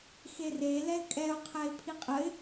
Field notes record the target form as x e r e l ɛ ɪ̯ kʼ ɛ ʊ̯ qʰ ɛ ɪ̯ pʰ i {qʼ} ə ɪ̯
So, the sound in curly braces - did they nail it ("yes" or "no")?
yes